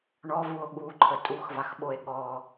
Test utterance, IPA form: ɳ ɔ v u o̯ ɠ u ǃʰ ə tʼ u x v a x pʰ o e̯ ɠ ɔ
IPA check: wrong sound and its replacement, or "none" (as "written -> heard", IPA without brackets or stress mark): pʰ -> ɓ